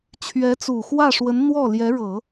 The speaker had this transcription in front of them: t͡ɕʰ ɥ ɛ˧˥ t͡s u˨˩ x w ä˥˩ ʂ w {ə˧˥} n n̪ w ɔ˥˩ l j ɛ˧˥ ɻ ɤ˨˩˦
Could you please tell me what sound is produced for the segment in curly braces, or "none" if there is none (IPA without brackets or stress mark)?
ə˧˥